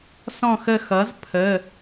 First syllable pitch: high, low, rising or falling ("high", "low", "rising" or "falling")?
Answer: falling